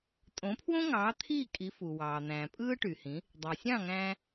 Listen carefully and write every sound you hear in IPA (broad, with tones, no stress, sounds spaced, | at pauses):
tʼ õ˩˥ pʰ w õ˥ ŋ ɑː˩˥ t̪ʰ iː˥˩ kʼ i˩˥ f u˩ w ɑː˩ n̪ æ̃ː˩ pʼ ɯː˥ ʈ y˩ h ĩ˩˥ | dˤ æ˩ sʲ ɑ̃˥˩ ŋ æ̃ː˧